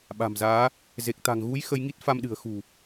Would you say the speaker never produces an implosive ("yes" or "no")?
no